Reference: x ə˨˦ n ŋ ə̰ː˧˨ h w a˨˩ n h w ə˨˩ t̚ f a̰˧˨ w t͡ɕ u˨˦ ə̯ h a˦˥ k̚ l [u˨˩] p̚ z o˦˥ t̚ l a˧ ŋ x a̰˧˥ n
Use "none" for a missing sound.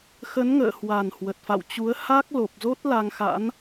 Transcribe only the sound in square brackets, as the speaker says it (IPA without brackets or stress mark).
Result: o˨˩